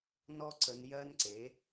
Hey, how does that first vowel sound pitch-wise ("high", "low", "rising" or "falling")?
high